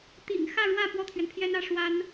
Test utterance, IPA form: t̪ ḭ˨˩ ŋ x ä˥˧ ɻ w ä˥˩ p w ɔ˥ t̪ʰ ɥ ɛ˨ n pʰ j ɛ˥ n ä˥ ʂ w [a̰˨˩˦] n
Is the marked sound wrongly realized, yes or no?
yes